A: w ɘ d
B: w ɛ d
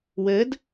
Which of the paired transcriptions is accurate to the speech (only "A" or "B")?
A